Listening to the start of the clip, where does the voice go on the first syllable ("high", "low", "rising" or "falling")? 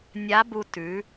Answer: rising